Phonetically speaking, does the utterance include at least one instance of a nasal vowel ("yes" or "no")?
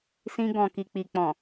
yes